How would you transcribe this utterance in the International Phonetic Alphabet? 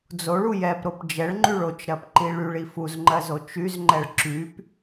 d͡z o ɭ u j ɛ p ɾ o p d͡ʒ ɛ ɭ ŋ͡ǃ y ɭ o t͡ʃ ɾ ɜ p ǃ i ɭ y ɭ i f u z ŋ͡ǃ ɜ z o t͡ʃ y z ŋ͡ǃ ɛ ɭ ǁ y p

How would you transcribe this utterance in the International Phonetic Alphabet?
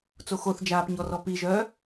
t͡s o x o θ d͡ʒ aː p ɲ ɔ r ɔ p i ʒ œː

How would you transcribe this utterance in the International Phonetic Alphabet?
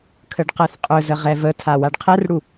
kʰ ə ɖ q ɛ θ qʼ ɵ z ə ʁ ɛ v ə tʰ a w a ɖ qʰ ɛ r ɽ u

